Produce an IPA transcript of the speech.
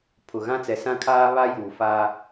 pʰ ʊ˨ ɣ ã˦ t͡s ɛ˨ s ã˦ kʰ aː˦ β a˦ j uː˨ f aː˦

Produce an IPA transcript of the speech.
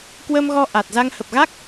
k w ə˧ m ɣ ɔ˧ ʔ a˨˩ t̚ z a˧ ŋ h ə˨˩ p̚ ɣ a˦˥ k̚

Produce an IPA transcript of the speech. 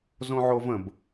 z õ ʕ o v ə̃ b

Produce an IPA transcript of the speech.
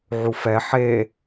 ʕ u f ɛ ħ e

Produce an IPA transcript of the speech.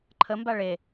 ǃʰ ə m b a ɭ e

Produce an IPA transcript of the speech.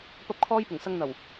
p ɐ˥ p̚ kʰ ɔː˥ j p ʊ˨˩ ŋ s ɐ˧ ŋ n̪ ɐ˨˩ w

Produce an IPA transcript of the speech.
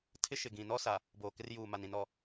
tʰ ɪ˦ ʃ ɪ˨ ɡ ĩ˨ n ɔ˦ s a˨ | b oː˨ k ɪ˦ r j uː˨ m a˨ n ĩ˨ n ɔ˨

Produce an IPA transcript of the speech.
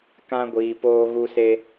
k ã˦ ɡʷ iː˨ p oː˦ ɣ u˦ s e˦

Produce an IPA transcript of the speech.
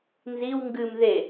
n z i w ŋ ɡ ɨ m ð e

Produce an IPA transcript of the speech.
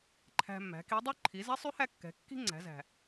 ǃʰ æ̤˧ mː æ̤˩˧ k i˧˥ dˤ ʉ˥ ǃʰ i˩˧ z ɛ˧˥ sˤ ʉ˧˥ h æ˧ kː ɛ̤˩˧ kː i̤˥ ŋ͡ǀ æ̤˩˧ z æ̤˩

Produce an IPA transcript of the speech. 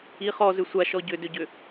i χ ɔ z ʏ sʷ a ʃ ɔ ɟ ʏ d ʏ ɟ ʏ

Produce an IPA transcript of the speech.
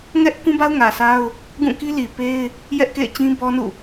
ŋ ɛ˦ ʔ k ũ˦ b a˦ ʊ̯ ŋ ä˨ sʰ a˦ ʊ̯ | ɡ ũ˦˨ k i˦ l i˨ p e˦ ɪ̯ | j ɛ˦ ʔ k ḛ˦˨ ɪ̯ t͡ɕ ĩ˦ b ɔ˦ n ṵ˦˨

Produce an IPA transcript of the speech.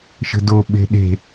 ʃ ə̤ d o ɓ e̤ ɗ e̤

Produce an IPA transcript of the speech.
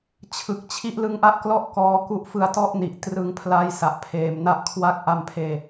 t͡ɕʰ ɯ˨˩ k̚ t͡ɕʰ i˦˥ ʔ l ɯ˦˥ ŋ ʔ a˥˩ ʔ k l ɔ˥˩ ʔ k ɔː˦˥ k u˦˥ ʔ f ɯ˧ a̯ t ɔ˥˩ ʔ n i˨˩ ʔ t r ɯ˧ ŋ pʰ l a˦˥ j s a˨˩ ʔ pʰ eː˨˩ m n a˦˥ ʔ kʰ w a˦˥ k̚ ʔ a˧ m pʰ eː˧

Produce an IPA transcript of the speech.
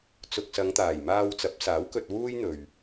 t͡s ʊ˨ k̚ s ɐ˨˧ ŋ t̪ aː˨˩ j m aː˧ w t͡s ɐ˨˥ p̚ s aː˨˥ w k ɵ˧ t̚ w uː˥ j n̪ ɵ˨ ɥ

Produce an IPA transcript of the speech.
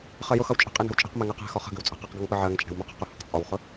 χ ɜ j ʊ x ʌ w t͡ʃʼ ə̤ qʼ i n ə̤ w t͡ʃʼ i̤ q m ɛ ŋ ɜ q ɛ̤ x ɒ χ ə̤ ɡ ə̤ w t͡sʼ ə̤ q i q ɡ ʌ ŋ p ə ʕ ɜ ŋ t͡ʃʼ ɛ̤ w m ʊ q ɛ̤ q ʊ h ə q t͡sʼ ɒ w χ ʊ

